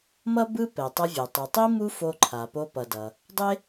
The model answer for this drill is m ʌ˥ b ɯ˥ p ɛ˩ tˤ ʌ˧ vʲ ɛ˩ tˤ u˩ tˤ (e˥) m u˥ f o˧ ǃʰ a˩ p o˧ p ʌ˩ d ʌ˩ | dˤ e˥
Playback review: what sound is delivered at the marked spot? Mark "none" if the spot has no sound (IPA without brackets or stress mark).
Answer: i˥